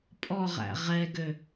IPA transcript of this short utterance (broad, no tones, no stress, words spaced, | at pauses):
pʼɔʁæ̰ ʁɛɡø